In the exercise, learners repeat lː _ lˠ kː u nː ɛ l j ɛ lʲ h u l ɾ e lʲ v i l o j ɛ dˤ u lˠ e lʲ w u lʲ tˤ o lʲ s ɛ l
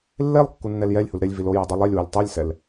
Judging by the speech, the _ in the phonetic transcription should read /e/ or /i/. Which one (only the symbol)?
e